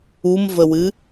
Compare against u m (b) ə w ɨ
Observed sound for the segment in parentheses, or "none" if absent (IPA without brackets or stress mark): v